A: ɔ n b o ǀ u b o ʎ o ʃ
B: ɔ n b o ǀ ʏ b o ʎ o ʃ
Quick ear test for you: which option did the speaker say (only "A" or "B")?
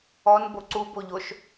A